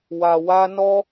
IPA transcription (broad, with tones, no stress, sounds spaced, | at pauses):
w a˨ w a˧ n ɔ˧